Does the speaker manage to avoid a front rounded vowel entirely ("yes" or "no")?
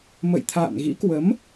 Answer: yes